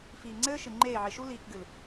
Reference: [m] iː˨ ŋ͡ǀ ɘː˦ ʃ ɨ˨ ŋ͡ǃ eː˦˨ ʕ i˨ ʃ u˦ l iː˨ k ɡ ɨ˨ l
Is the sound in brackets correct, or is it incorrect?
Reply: incorrect